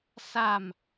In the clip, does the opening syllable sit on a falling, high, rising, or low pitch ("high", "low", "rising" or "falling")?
falling